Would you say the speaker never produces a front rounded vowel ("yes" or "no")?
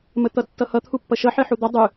yes